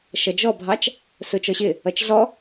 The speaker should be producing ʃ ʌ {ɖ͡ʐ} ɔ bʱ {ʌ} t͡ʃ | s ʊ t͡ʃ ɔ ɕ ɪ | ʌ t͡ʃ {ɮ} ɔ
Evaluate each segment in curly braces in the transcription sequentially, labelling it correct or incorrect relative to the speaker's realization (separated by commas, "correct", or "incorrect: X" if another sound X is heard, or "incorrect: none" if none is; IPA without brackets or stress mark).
incorrect: d͡ʒ, incorrect: ɑ, correct